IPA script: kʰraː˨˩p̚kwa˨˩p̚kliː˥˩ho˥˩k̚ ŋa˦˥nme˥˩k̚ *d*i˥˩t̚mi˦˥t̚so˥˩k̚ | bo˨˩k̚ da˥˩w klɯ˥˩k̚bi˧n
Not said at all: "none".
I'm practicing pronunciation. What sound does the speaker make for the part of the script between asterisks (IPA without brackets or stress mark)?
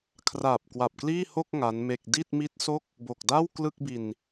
d